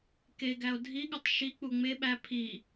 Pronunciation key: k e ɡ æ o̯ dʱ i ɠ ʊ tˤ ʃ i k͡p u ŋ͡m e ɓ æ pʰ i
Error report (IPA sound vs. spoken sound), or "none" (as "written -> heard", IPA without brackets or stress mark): none